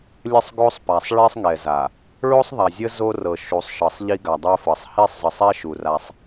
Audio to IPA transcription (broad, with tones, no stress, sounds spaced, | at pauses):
lʲ ə˦ sˤ ɡ o˦ sˤ p a˨ sˤ ɭ i˦ sˤ ŋ ɛ˨ z a˨ | ɭ o˦ sˤ ðˤ a˨ zʲ ə˦ z o˦ r ɤ˨ ʃ u˨˦ sˤ ʃ ɤ˨ sˤ ʎ i˦ ɡ a˨ dˤ ɛ˦ f ɤ˨ sˤ h i˦˨ sˤ z ə˨ sˤ ɛ˦ ʃ u˨ r a˦ sˤ